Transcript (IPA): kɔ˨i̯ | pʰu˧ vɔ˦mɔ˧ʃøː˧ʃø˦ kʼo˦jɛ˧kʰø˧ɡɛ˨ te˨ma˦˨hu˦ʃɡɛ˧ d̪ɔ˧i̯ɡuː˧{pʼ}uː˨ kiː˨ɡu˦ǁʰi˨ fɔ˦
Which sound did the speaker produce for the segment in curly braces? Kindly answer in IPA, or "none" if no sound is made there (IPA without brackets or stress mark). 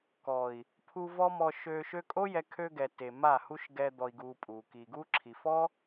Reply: pʼ